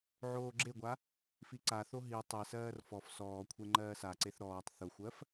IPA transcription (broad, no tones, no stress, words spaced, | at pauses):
ʕoːɡ͡ǁeɡʷa | fiǀaθo ɦi tˤesɜːr fɔf sɔːkʷʰe ŋ͡ǃɜːsaǀeθ ɾɔːtˤ θʊxʷɜf